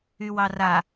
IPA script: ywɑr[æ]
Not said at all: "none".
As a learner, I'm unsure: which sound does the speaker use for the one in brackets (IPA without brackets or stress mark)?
a